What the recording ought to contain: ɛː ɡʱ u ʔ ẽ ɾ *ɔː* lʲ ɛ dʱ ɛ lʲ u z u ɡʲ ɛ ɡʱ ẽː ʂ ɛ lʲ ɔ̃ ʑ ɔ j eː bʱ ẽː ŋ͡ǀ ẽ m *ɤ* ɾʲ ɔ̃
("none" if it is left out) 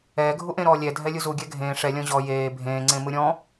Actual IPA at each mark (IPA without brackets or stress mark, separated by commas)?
ɔː, ɯ